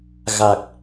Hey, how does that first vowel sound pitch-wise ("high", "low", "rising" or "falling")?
low